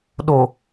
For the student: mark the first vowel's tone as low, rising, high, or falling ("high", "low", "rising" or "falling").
low